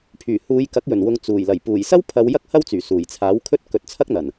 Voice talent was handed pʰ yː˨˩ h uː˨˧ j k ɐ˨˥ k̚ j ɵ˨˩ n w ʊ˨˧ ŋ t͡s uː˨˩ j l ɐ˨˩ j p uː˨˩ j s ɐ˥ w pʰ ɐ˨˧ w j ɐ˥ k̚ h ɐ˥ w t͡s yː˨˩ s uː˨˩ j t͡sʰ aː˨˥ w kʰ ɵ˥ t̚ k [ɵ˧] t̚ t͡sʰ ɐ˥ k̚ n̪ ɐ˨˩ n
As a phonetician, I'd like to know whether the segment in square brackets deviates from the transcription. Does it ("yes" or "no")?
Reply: yes